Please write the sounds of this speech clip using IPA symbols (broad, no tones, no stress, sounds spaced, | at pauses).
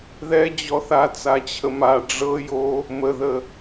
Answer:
ð ɛ d͡ʑ ɔ θ a t͡s a t͡ɕʰ ə m a ɖ͡ʐ ɤ j o | m ə ð ə